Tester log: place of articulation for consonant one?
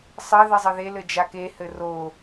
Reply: alveolar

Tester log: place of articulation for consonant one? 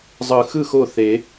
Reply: alveolar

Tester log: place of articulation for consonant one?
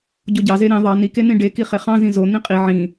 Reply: palatal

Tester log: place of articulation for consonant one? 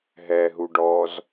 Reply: glottal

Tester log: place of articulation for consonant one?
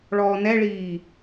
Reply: retroflex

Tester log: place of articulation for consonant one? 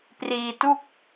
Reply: labial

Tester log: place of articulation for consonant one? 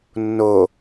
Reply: alveolar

